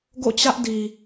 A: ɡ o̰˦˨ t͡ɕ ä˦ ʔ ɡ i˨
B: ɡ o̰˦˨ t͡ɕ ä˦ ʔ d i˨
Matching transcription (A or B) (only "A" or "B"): B